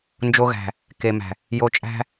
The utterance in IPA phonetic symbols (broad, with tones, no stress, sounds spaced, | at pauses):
n d͡ʒ o˧ ɣ æ̤˨ | k e˨ m æ̤˨ | j o˧ t͡ʃʼ æ̤˦